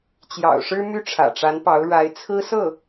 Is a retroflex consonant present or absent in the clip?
present